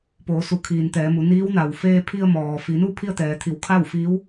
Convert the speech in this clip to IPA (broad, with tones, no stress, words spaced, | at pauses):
poː˩˧su˩˧kʰiː˩n t̪ɛː˩˧mu˩˧ niː˧˥wna˩w feː˧pʰi˧ə̯mɔː˩ fi˩˧nu˥˨ pʰi˥˨ə̯t̪ɛː˩˧t̪ʰi˩˧w kʰa˥˨wfiː˧˥w